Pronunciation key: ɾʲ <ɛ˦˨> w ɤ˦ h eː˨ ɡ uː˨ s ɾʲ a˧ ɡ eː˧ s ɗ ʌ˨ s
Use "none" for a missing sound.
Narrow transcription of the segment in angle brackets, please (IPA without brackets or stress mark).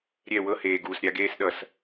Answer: ɛ˦˨